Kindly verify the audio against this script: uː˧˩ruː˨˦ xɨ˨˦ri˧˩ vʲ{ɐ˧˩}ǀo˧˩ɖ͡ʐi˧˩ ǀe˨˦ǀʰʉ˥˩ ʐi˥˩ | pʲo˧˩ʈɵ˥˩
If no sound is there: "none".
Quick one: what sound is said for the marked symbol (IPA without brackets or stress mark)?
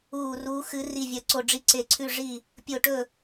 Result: ɐ˧˩